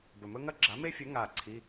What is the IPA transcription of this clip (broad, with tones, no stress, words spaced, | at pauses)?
bɵ˨˩mɵ˥ŋɐ˥ ɡ͡ǁa˨˥me˥ fʲɵ˨˥ ŋa˨˩ ǀʰi˧˥˧